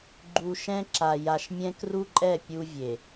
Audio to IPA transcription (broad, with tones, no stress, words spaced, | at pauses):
ɡ͡ǃu˨ʃɛ̃˦ǁa˨ ja˨ʃmʲɛ̃˦kru˦ǃʼɛ˦˨ pʲu˦vʲe˨